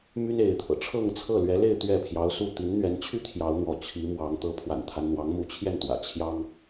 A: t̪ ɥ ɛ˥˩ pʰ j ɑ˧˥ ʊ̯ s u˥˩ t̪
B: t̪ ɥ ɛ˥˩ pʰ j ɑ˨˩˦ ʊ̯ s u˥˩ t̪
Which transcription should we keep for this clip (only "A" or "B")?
A